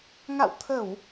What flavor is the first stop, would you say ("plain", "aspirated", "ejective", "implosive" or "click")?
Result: aspirated